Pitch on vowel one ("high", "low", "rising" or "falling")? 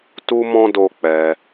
high